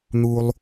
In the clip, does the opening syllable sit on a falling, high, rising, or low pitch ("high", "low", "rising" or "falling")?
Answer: low